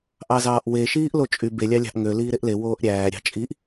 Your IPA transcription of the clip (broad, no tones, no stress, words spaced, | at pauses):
ʔɑzɑːʔwe ʃiːʔlot͡ʃʼy be lʲɑlʲɑ̤ʔŋø liːɾeʔle woːʔɾʲæː ɾʲɑ̤t͡ʃʼiʔ